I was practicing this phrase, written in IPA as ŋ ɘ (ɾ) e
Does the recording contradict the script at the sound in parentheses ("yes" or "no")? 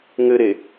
no